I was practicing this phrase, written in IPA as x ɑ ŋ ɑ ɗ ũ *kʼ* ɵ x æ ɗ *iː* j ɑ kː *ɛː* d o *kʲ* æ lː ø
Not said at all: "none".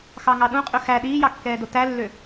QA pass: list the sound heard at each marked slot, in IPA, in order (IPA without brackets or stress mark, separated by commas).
qʼ, iː, ɛː, t